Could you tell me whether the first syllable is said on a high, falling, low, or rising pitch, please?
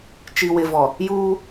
low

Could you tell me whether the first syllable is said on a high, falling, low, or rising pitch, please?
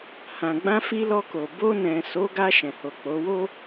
low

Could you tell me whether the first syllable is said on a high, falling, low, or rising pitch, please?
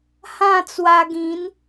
falling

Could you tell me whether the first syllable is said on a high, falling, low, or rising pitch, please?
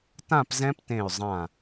falling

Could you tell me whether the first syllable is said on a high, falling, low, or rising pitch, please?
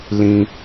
high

